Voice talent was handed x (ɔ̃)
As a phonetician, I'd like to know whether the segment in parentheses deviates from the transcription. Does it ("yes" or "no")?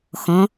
no